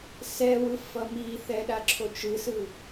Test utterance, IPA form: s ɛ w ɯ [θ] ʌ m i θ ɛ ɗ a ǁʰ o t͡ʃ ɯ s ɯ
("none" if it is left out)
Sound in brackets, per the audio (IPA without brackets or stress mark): f